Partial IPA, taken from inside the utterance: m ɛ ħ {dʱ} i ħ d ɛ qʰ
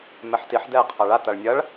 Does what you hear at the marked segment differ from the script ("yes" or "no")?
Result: yes